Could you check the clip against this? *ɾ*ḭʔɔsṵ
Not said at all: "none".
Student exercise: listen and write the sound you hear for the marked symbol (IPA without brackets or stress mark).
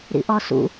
ɾ